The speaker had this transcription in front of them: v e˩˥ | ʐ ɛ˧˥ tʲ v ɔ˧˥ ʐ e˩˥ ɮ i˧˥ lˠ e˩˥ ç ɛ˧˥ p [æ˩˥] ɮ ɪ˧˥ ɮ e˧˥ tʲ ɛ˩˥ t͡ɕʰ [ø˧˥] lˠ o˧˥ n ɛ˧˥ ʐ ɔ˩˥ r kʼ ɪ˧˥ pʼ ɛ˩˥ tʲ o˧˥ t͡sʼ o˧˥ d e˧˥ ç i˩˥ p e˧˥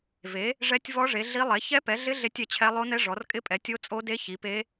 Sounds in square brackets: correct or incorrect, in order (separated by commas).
incorrect, incorrect